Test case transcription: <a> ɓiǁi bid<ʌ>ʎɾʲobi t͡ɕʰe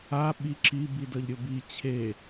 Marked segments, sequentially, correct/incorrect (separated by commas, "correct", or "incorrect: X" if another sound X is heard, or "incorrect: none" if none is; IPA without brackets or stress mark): correct, correct